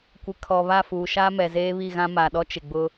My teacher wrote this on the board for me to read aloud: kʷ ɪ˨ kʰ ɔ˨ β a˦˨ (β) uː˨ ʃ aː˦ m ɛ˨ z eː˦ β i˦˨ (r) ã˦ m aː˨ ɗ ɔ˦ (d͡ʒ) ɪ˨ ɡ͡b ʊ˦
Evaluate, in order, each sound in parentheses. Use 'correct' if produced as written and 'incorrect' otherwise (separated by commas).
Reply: incorrect, incorrect, incorrect